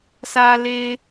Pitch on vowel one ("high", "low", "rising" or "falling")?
low